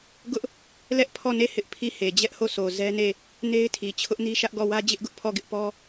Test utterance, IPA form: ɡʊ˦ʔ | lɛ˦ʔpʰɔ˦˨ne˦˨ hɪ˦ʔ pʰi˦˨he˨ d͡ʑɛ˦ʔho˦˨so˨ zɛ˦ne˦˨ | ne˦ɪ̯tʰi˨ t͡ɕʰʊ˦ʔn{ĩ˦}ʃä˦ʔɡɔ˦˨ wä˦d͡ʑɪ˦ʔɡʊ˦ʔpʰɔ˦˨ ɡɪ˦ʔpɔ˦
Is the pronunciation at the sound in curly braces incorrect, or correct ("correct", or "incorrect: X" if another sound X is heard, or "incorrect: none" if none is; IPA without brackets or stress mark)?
incorrect: i˦